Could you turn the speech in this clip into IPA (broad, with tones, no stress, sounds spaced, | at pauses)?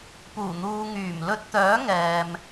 p uː˨˩ n̪ uː˨ ŋ yː˨˩ m l ɵ˧ t̚ t̪ œː˨˥ ŋ ɛː˨ m